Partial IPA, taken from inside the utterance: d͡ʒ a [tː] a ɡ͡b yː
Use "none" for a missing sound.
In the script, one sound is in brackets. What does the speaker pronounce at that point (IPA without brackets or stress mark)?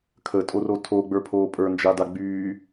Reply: d